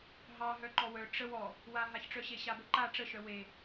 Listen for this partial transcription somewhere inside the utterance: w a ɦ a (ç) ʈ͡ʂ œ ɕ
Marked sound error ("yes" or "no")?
no